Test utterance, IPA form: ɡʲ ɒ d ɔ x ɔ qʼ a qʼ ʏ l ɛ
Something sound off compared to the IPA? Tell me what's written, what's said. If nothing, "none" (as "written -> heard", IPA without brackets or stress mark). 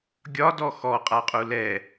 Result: ʏ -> u